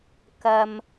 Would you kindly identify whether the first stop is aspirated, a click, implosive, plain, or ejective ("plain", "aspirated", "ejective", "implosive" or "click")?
plain